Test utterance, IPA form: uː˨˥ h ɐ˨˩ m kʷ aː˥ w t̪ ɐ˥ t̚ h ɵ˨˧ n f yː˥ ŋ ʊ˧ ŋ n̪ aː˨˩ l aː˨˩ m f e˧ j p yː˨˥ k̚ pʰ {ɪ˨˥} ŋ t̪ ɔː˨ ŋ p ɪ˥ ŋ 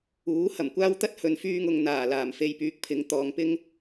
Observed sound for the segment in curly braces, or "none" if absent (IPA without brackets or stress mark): ɪ˨˥